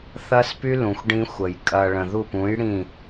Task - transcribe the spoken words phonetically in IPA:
θ ɐ˦ s p y˦ l ũ˨ xʷ ɖ ĩ˦ xʷ ə˨ j kʼ ɐ˨ ɭ ə̃˨ ð u˦˨ p ũ˨˦ j ɽ ĩ˦˨

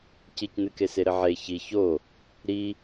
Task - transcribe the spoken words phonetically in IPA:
c i c n ɨ k e s e ɾ ɘ ʕ e ç i ç o | ɾ i

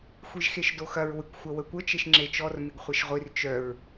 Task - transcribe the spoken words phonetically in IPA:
xʷ i ʒ x e ʃ d o x ɐ ɹ w ɪ kʷ xʷ ɐ w ə kʷ ə t͡ʃ e ʃ ŋ͡ǁ e t͡ʃ ɔ r m ɪ ɡ χʷ e ʃ ʁʷ i r t͡ʃ œ ɹ

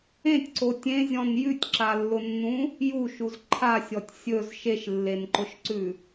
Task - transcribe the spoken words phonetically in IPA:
ẽ tʲ ǀ o tʲ ẽ zʲ ɔ̃ n j ʉ tʲ ǁ a lː ʊ nː ũ | j u ʃ u z ǃʰ a sʲ ɔ tʲ sʲ ɵ z ʃ e ʃ lː e n ǃ ʊ ʃ ǀ ʉ

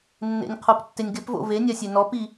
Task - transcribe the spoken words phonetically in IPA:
nː ḛ nʲ qʰ o p tː ɪ nʲ ɡ ɪ p v o̰ v e nʲ a sʲ e n ɔ p i

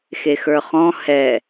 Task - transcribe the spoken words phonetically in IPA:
x e x ə˞ χ ɔ̃ h ɛ

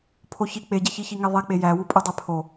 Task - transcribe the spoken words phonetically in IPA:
pʰ o ç i k͡p e ɟ e ç i ç i ŋ e ðˤ e k͡p e j æ w u pʼ u dˤ e pʰ o

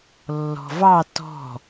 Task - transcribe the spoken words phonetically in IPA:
lː ɔ̤ v ɑ t ɔ̤

